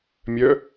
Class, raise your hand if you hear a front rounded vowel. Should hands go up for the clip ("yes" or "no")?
yes